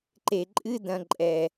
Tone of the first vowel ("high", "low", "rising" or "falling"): low